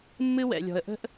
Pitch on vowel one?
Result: high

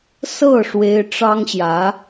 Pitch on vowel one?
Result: falling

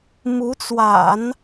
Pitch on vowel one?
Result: rising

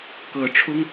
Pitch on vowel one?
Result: low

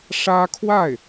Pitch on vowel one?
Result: high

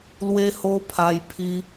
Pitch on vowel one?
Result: high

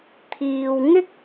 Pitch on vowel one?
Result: low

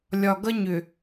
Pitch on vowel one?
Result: low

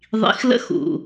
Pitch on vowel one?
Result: rising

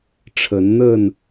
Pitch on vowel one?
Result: rising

